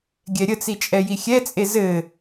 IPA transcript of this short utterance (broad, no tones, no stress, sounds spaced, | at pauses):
ɡʲ ɛ ɾʲ ə t͡s i t͡ʃʼ ɛ j i xʲ ɛ t͡sʼ e z ɘ